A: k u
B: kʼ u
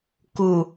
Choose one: A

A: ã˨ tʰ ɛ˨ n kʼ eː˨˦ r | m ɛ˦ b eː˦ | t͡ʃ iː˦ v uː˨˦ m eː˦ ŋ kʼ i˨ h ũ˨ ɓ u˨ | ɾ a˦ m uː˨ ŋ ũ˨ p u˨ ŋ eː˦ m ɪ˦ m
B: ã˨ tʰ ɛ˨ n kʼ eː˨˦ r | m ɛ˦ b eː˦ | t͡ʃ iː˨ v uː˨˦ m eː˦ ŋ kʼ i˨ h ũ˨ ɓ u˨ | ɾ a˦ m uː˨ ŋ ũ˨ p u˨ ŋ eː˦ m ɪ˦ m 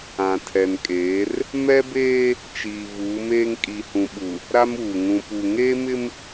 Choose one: B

